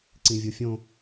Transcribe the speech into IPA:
ǀ ĩ vʲ o fʲ õ

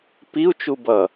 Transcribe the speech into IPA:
p i u̯ t͡ʃ u b ʌ

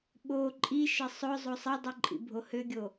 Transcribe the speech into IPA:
ɓ o ǃʼ i ʃ ə sˤ ʊ zˤ o sˤ e dˤ u ǃʼ ḭ bʱ o h ø ɡʲ o

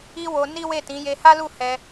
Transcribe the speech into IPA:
i˦ w o˧ n i˦ w e˦˨ t ĩ˨˦ j e˧ h a˦ l u˦˨ h ɛ˧

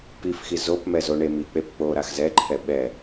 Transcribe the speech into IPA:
p i f x i z o p m ɛ z o ɳ e m i k͡p e p k͡p o ɾ a x z ɛ ǃʰ ɛ ɓ ɛ

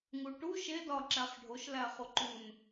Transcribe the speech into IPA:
ŋ u ʈ u ʃ e d ɒ ǁ æ χ ɖʱ o ʃ l æ χ u ǃ u n

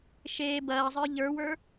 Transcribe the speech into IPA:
ʃ eː b ɐː zˤ ə˞ ʎ ə˞ w ə˞

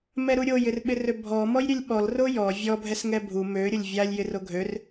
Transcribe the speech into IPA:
m ɛ ɾ u ɾʲ o j ɪ r ɓ ɪ r ø bʱ ɔ m ɔ j ɾʲ ø lʲ ɓ ɔ l r o j ɔ vʲ ɔ bʱ ɛ s ŋ ɛ bʱ u m ø ɾʲ o lʲ vʲ a lʲ j ɪ r o ɡʱ ø r

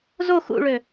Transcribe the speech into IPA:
z o x ṵ ɭ ø

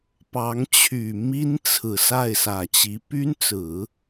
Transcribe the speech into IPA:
p ɑ˧˥ ŋ t͡ɕʰ y˨˩ m i˥ n t͡sʰ ɹ̩˨˩ s a˥˩ ɪ̯ s ä˨˩ t͡ɕ i˧˥ p y˥ n t͡s ɹ̩˨˩˦

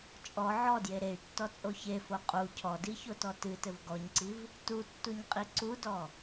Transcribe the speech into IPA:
t͡ʃʼ ɔ ʕ ɔ d j e ɾ e y̯ tː ɔ t͡sʼ o ç e f o qʼ u cʰ ɔ d i ç o t ɔ t ɨ t ɘ v ɡ ɔ ɲ ǀ i v | t u tː u ɲ qʼ i ǀ u d ɔ

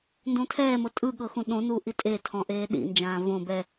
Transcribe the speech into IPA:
n d õ tʰ ɛː m ɤ tʼ ɯ ɠ ɤ x ũ ɗ õ n u ʔ i tʼ e tʰ ɔ̃ ʔ eː ɗ ḭ n d͡ʒ ãː v õ b ɛ

